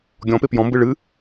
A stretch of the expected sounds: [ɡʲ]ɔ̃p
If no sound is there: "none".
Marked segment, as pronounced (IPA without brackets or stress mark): ɡʲ